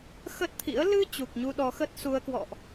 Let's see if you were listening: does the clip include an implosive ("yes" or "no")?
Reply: yes